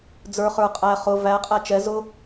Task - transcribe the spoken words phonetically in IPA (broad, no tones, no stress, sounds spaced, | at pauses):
d͡z ə˞ χ ə˞ qʼ æ χ ʊ v æ qʼ æ t͡ʃ ɛ z ʊ